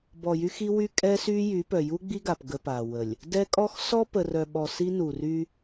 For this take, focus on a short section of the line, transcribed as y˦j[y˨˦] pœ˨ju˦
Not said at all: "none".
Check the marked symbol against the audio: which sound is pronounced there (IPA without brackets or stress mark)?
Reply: y˨˦